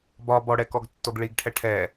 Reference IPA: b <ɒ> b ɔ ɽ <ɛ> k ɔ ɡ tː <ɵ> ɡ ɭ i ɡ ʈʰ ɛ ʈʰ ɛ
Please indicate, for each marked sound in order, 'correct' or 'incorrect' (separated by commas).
correct, correct, incorrect